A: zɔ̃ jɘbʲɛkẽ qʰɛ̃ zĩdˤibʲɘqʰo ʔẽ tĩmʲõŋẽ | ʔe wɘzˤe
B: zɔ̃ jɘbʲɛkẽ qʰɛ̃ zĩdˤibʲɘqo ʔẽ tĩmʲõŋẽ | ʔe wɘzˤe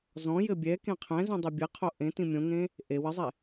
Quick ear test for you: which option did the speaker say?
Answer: A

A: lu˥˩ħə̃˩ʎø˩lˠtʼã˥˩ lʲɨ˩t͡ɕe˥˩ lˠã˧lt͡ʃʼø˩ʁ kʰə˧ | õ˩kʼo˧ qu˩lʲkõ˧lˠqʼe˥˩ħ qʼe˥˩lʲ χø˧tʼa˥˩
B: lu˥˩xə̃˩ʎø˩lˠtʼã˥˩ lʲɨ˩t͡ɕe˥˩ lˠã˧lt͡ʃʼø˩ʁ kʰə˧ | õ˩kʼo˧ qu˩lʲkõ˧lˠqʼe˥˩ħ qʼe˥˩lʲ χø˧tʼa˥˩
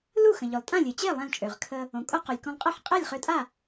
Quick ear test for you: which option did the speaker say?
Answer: B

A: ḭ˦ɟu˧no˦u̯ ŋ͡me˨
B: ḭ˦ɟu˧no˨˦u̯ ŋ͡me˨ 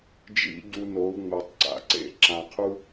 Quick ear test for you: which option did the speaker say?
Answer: B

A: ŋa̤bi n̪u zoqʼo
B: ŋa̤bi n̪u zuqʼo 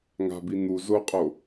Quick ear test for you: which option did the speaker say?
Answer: A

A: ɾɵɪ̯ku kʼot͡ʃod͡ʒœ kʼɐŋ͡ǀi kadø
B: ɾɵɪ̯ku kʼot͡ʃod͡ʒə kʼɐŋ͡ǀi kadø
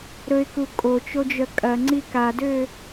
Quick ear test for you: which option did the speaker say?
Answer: A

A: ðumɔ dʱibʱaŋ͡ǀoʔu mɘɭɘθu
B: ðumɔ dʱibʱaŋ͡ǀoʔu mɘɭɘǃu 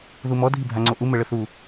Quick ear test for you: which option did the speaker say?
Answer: A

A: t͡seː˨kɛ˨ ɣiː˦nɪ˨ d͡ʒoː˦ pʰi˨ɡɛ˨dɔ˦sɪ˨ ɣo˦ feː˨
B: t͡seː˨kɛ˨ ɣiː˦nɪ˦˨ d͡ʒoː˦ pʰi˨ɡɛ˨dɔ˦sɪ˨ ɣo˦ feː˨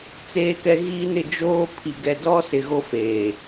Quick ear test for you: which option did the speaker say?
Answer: B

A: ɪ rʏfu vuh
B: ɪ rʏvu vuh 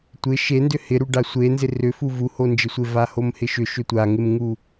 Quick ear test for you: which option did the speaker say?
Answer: A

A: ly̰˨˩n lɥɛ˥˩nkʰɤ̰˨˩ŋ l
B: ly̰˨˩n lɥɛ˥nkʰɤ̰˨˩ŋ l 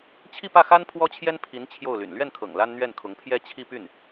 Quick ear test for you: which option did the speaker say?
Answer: A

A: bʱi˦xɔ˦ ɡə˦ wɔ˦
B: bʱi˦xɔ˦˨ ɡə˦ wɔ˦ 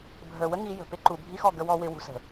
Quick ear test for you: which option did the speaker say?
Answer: B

